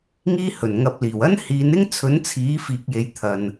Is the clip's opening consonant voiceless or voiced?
voiced